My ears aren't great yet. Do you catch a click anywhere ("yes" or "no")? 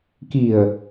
no